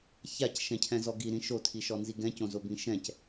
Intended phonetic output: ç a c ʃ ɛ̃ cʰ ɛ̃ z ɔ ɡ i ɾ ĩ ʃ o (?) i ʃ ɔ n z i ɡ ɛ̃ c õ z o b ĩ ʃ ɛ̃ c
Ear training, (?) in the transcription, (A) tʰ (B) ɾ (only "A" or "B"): A